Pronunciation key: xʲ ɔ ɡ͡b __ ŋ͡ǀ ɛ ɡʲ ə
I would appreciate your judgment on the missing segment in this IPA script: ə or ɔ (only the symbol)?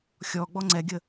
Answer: ɔ